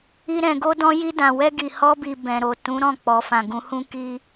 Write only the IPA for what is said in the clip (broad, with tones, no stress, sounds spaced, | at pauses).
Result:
i˧ ɾ ɛ̃˨ ɡ o˧ d ɔ̃˧ j i˧ d ã˨ w ɛ˧ ɡ i˨ h ɔ˧ b i˨ b ɛ̃˨ ɾ o˨ t ũ˨˦ ɾ ɔ̃˦˨ k͡p ɔ˨ f ã˨ ɡ ũ˨˦ h ũ˦ k i˦